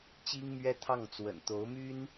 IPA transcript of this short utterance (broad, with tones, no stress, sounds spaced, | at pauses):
t͡ɕ i˥ ŋ m ɥ ɛ˥ t̪ʰ ɑ˥˩ ŋ t͡s w ə̰˨˩ n t̪ o˧˥ ʊ̯ m y˥ n